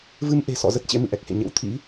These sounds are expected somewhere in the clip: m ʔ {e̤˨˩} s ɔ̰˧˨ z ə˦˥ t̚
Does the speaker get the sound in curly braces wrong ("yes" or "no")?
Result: no